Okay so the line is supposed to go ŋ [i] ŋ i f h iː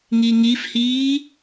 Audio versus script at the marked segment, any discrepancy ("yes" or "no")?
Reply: no